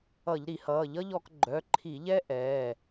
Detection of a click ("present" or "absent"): present